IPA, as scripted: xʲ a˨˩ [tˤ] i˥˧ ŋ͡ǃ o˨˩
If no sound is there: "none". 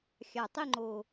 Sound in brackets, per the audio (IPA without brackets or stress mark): tˤ